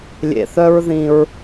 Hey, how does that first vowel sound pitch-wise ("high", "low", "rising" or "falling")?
low